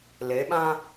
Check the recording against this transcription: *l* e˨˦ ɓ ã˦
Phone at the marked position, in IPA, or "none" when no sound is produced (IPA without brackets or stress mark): l